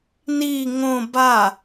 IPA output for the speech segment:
ni ŋõ ba

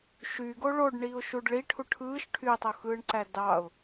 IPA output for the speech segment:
ʃyɡo ɭoɖɳiʊ̯ʃuɖ ɭi ʈʰuʈʰɯːʃ ʈʰytˤoxɯːɳǀæ dɑʊ̯

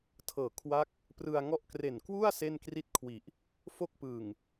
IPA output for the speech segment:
tʰɤː˨˩ kʰwa˦˥k̚ | prɯ˧a̯ ŋɔ˦˥ʔkre˨˩nkwu˥˩a̯ se˥˩nkri˥˩t̚kʰwi˨˩ʔ | fo˥˩k̚pɯ˨˩ŋ

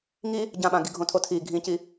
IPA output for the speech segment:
ŋi | ɟãɓã ɡiɡʱõtʰotʰi ɡʱĩci

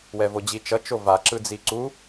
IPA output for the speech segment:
wɛvod͡ʑi t͡ʃʌ t͡ʃova ǁɯd͡ziǀu

